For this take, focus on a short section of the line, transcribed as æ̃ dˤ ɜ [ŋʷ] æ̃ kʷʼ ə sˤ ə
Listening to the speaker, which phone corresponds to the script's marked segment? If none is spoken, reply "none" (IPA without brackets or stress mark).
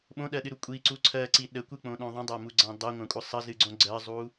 ŋʷ